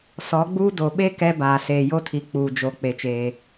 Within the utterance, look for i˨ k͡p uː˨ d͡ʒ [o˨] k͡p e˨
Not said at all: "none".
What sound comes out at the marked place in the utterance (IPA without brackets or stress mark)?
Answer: o˨˦